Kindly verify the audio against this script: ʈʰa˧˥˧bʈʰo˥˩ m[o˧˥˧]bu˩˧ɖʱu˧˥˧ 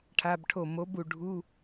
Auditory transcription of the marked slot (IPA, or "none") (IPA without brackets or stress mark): o˨˥